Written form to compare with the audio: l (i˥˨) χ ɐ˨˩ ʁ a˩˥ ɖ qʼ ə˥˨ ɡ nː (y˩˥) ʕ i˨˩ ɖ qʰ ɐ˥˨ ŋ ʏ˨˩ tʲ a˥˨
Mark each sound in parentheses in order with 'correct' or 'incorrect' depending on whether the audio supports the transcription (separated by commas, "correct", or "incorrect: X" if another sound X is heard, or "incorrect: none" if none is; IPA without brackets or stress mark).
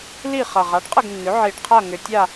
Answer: correct, incorrect: ʏ˩˥